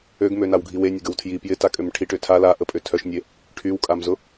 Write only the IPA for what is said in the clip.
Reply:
ø ɡ m ø n a w ɡʱ i w e nʲ ə ɡ ə w tʰ j i p j ɪ t a kʼ ø m ʈʰ i ʈ ʏ tʰ a l a ʔ ə pʼ ʏ tʰ œ ʃ nʲ e | ʈʰ y w kʼ a m z ʊ

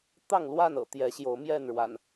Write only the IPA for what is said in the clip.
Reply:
t̪ ɑ˥˨ ŋ l w a˥˨ n ɤ̰˨˩ t̪ j ɛ˨˦ ɕ j o˨˦ ʊ̯ m j ɛ˥˨ n ɻ w a̰˨˩ n

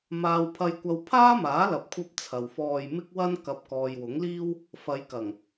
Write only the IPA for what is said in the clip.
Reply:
m aː˥ w pʰ ɐ˥ j kʷ ɐ˥ w pʰ aː˥ m aː˨˥ l ɐ˨ p̚ kʷʰ ɐ˧ p̚ t͡sʰ ɐ˨ w f ɔː˧ j m ɪ˥ k̚ w ɐ˥ n k ɐ˨˥ p̚ k ɔː˨ j w ʊ˨˥ ŋ l iː˥ w | f ɐ˨˧ j k ɐ˨˩ ŋ

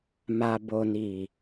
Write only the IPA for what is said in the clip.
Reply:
m a˨ b o˨ n i˨

